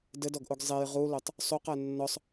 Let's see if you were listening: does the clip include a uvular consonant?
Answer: yes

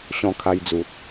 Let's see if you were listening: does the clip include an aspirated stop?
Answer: yes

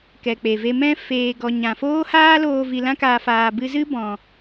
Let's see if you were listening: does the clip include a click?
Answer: no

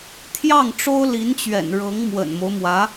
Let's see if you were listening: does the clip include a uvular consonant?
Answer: no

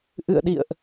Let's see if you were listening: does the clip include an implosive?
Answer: yes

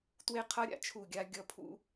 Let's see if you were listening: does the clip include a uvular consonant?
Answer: yes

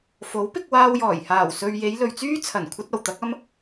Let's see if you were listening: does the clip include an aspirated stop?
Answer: yes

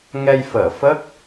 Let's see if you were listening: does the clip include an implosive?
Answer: no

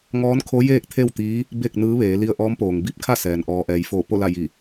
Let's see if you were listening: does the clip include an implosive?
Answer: no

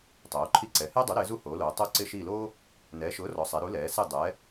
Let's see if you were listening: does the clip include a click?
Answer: yes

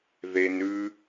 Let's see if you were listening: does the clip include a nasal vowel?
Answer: no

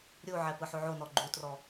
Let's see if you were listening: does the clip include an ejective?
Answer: no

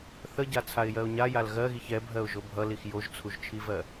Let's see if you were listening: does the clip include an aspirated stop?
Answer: yes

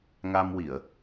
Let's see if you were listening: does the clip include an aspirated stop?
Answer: no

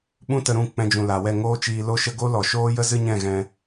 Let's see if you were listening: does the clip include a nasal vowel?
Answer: yes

